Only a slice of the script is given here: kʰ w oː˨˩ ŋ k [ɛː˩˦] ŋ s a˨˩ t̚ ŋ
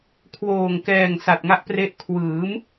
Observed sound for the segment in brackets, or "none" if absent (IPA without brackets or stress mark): ɛː˨˩